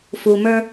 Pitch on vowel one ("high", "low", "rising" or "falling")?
low